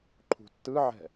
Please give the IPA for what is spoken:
ǃʰṳtːɯʕɛ̤

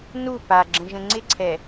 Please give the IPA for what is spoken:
nu paɡ͡ǁə̃ʒə̃ ŋ͡ǀɪǀʰɛ

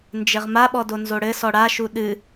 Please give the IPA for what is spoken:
nd͡ʒɘʁmaɓɔ donzoɽɘsɔ ɽaʃu ɗɨ

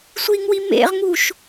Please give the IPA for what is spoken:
sʷiŋwi mḛʁŋuʃ

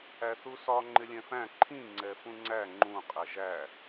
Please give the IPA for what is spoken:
æθusɒ ŋ͡ǃɪlʲɛ̃fæ̃ ǃʰĩ ŋ͡ǀɛfũŋ͡ǀæ ŋ͡ǃũ qʼɛʒæ

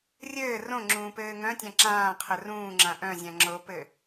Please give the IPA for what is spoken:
rʲɘː rõ ŋ͡ǁũːpɘːŋœ̃tʲã ǁãːqʰɘ rũːŋ͡ǁã ʔœ̃zʲã ŋ͡ǁopɘ

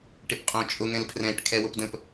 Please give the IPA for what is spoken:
ʈɪpqʼõt͡ʃʼʊ ŋɛ̃lpʰrɛ̃ʈ kʰɛwʊpdə̃p

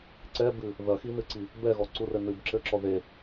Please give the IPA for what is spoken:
ǀɛbɨ | ðɐxinɨǀi | bɛɣɔǀurɘ nɨbǁɘǁɔ ðe

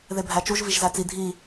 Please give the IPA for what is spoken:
ðebʱæt͡ʃuʒ viʒzæt͡si dʱi

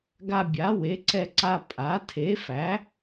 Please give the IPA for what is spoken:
ɡa˧ bʲa˩˥we˩˥ǀɛ˧ ǀa˧ pʼa˩˥ tʰe˩˥fæ˩˥

